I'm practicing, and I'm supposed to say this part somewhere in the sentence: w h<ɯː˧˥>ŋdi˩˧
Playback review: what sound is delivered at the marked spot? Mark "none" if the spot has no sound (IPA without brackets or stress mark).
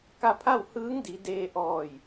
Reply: ɯː˧˥